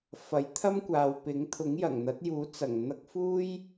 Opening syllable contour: rising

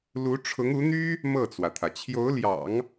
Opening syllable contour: rising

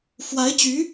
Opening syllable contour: rising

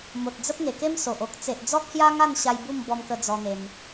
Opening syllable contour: low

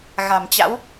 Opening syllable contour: low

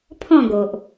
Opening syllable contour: falling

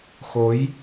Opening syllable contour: rising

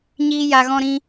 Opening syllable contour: high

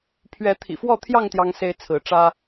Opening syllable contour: rising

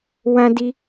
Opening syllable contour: high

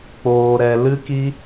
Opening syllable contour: low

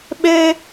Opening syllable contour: high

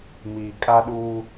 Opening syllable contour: low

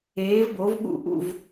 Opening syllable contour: rising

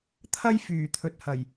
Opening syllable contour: high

